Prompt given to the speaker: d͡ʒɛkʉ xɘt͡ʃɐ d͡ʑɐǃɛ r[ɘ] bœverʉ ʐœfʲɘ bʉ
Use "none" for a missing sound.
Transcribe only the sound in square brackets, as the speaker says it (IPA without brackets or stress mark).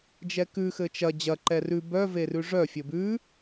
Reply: ʉ